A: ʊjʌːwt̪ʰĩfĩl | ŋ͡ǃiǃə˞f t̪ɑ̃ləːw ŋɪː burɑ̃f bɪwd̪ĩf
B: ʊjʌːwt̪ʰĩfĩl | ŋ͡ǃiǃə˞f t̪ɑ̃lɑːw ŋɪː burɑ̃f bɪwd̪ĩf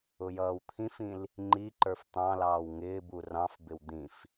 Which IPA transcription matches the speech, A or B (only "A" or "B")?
B